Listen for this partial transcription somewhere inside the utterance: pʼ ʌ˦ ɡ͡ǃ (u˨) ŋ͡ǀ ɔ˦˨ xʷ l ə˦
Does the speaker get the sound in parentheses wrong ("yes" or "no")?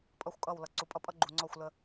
no